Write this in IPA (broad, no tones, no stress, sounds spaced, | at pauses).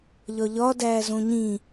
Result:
ʎ ɒ ʎ ɒ d æː z õ ɲ ĩ